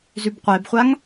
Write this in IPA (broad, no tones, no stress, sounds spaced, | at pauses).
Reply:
z ʉ b qʷ e b χʷ a ŋ